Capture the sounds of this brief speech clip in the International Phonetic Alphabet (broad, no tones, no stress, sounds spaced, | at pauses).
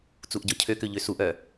t͡s u ʔ ɟ ɔ cʰ ø k ø ʎ ø s u ʔ œ